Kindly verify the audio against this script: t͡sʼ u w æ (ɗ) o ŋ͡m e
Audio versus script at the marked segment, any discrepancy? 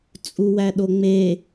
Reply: no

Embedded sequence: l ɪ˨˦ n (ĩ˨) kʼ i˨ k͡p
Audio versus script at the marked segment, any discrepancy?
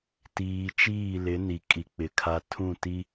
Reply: yes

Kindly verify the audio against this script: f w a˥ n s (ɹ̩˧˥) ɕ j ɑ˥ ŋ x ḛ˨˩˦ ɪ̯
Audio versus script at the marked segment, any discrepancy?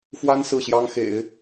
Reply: yes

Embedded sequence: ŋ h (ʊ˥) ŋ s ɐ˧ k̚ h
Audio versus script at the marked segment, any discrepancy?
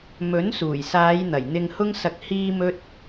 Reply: no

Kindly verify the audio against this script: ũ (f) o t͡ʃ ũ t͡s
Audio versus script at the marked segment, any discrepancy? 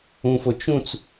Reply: no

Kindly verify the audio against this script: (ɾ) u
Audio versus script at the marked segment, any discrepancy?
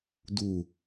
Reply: yes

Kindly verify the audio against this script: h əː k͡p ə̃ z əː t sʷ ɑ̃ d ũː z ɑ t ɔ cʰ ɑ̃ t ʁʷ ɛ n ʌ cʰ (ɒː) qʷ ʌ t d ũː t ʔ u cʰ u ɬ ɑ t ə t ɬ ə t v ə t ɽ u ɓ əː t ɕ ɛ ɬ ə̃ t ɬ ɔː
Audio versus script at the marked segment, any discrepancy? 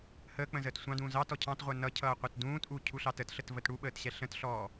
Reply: yes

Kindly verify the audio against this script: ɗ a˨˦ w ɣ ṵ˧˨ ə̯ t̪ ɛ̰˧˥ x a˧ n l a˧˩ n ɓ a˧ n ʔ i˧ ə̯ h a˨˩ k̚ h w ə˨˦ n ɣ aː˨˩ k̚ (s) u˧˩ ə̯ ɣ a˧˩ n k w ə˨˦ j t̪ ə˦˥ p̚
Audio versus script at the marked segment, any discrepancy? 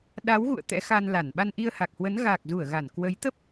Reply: yes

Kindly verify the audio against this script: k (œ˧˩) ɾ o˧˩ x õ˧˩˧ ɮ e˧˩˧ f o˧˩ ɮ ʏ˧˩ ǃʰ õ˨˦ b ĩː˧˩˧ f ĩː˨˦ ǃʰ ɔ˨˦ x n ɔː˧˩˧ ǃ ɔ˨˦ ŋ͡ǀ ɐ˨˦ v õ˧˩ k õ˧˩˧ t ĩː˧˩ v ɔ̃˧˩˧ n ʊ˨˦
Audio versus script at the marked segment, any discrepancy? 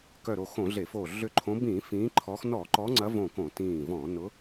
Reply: no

